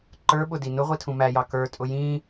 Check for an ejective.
present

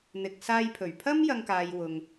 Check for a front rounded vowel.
absent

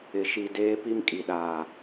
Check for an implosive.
present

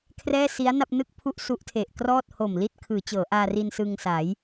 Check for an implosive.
absent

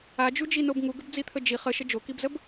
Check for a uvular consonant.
present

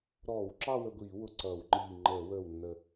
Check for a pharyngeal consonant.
absent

